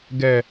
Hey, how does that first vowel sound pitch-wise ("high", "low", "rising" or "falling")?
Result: low